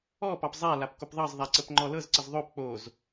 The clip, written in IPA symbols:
ɔ pɑpzˤalap kopðˤɑzðˤæ ǀəpŋ͡ǃɔlɤzǀəz ðˤop k͡poz

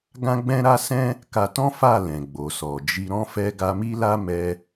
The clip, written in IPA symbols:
ɡã˦ɡ͡bɛ̃˦ɾa˦ sɛ̃˦ | ka˧tɔ̃˦ fa˦˨lɛ̃˨ ɡ͡bo˨sɔ˨d͡ʒi˧ ɾɔ̃˧fɛ˧ ɡa˧mi˦la˦mɛ˧

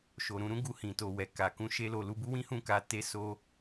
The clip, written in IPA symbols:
ʃo˨ɾũ˧ɾũ˦ ɡu˧hĩ˨to˨ wɛ˨ ka˨ kũ˨˦ʃe˧ lo˨ lu˧bu˦wĩ˦hũ˦˨ ka˨˦ te˦so˦

